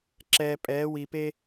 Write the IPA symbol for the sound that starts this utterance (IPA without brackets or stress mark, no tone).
ǁ